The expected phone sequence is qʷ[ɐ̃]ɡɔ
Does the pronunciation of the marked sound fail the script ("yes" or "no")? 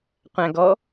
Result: yes